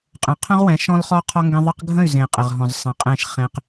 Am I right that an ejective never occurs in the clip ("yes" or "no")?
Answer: no